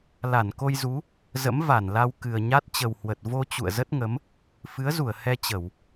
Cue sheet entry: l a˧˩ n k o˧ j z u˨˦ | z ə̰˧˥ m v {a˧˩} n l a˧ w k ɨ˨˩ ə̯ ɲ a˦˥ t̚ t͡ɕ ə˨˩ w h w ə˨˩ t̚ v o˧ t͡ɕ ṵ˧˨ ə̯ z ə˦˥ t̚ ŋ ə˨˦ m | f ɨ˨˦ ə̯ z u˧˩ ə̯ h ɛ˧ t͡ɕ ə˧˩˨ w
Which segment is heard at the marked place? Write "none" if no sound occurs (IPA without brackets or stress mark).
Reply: a˧˩